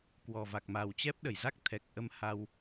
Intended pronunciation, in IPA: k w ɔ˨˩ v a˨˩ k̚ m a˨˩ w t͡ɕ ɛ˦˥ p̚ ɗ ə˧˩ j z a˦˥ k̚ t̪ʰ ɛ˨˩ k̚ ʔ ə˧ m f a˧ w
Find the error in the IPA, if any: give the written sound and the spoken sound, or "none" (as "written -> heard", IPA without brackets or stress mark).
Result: f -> h